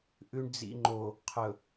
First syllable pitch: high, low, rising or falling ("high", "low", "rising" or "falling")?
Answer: low